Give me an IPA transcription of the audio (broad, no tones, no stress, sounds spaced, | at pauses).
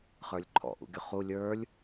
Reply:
χ ə˞ lʲ ǃʰ ɔ̰ ʔ ṵ ɡʲ ʊ χ u lʲ ə˞ lʲ